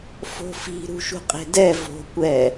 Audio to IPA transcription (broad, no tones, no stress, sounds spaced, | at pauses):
f o̤ f i̤ ɾ ṳ ʃ ṳ qʼ e̤ d ɛ v o̤ kʷ ɛ